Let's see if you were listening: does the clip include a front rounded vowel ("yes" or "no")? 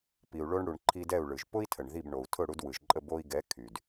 yes